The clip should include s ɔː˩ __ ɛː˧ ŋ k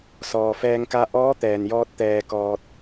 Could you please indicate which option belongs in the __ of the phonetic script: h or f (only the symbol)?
f